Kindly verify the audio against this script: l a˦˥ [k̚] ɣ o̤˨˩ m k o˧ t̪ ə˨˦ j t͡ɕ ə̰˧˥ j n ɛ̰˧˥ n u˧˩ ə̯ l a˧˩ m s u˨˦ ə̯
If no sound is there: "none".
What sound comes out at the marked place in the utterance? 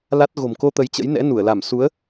t̚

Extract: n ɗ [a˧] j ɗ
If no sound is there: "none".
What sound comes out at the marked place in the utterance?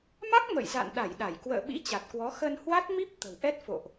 a˧˩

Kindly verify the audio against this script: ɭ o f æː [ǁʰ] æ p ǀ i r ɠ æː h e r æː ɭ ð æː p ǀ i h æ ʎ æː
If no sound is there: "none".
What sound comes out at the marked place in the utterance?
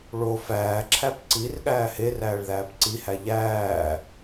ǁʰ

